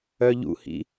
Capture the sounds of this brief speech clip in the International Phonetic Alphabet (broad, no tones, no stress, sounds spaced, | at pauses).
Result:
œ ʎ ṵ h ḭ